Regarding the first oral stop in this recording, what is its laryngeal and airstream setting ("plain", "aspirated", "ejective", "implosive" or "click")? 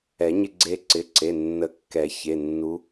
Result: click